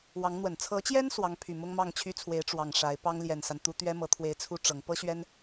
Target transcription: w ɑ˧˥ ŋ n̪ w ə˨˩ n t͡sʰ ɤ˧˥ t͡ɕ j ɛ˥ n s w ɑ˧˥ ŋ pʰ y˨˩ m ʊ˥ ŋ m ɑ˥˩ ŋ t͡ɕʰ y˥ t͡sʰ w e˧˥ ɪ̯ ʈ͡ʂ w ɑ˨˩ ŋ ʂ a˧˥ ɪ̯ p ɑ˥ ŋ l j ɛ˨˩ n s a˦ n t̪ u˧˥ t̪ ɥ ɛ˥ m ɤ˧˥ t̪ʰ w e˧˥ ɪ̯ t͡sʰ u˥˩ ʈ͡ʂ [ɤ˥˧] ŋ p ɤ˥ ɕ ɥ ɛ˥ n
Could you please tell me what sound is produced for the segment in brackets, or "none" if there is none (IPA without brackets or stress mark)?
ɤ˧˥